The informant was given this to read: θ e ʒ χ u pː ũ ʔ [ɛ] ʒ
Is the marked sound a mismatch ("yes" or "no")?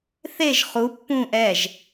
no